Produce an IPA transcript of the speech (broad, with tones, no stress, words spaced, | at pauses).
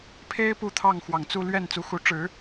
pʰe˥ɪ̯ pu˥˧t̪ʰɑ˥˩ŋxwɑ˨˩ŋt͡su˥˧ lɥɛ˥˩n t͡su˧˥xu˧˥ ʈ͡ʂɻ̩˨˩˦